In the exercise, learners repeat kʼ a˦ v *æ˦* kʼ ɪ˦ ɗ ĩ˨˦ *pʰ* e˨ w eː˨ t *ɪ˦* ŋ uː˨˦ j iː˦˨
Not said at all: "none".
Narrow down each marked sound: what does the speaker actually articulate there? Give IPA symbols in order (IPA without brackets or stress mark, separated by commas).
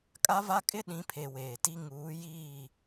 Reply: a˦, pʰ, i˦